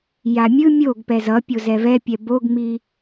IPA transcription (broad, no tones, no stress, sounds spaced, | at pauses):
j a mʲ ɯ mʲ o ɡ p ɛ z ʌ pʲ o z ɛ v ɛ pʲ ɛ b o ɡ ŋ͡m i